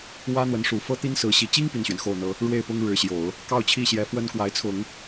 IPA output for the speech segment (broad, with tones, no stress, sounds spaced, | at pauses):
w ä˥ n̪ w ə˧˥ n ʂ u˨˩ f ɤ˥ t̪ i˥ n s ɹ̩˧˥ ɕ i˨˩ t͡ɕ i˥ ŋ p i˥˩ n ɕ ɥ ɛ˩ n x o˥˩ ʊ̯ n̪ ɤ˥ | ɻ w e˥˩ ɪ̯ p ʊ˥ ŋ ɻ ɻ̩˧˥ ɕ j o˨˩˦ ʊ̯ | k ɑ˥˧ ʊ̯ t͡ɕʰ i˥˩ ɕ j ɛ˧˥ f w ə˥ n k w a˧˥ ɪ̯ t͡sʰ ʊ˨˩˦ ŋ